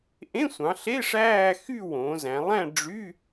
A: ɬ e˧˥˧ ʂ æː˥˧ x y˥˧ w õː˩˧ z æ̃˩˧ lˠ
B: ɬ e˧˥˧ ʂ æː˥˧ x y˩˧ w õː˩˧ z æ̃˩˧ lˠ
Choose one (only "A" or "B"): A